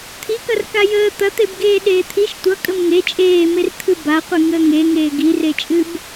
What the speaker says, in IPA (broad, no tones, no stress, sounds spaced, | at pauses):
t̪ʰ i k ɐ r k a j əː t̪ ɐ t̪ e b ɡ eː ɗ eː t̪ʰ i ʃ tʷ ʌ kʼ ə m ŋ e t͡ʃʼ eː m e r t̪ʰ ɨ b a qʷ ɨ ŋ əː ŋ e ŋ eː ɡ i r e t͡ʃʼ ɨ b